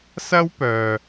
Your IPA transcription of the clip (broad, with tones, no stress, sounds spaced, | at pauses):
s ɐ˥ w p œː˨